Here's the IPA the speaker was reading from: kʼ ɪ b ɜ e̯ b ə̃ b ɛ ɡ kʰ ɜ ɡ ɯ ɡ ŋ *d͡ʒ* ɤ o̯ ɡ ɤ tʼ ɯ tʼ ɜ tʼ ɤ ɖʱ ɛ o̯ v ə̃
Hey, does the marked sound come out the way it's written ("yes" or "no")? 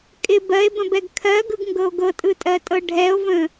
no